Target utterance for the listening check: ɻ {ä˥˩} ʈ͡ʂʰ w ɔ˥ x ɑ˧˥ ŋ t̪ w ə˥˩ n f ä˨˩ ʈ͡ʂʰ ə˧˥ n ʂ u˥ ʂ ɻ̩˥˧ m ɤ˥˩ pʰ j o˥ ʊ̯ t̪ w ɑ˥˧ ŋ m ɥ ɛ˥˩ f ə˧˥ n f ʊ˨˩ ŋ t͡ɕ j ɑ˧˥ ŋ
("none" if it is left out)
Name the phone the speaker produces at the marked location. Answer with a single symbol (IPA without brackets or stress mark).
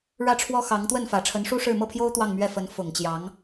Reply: ä˥˩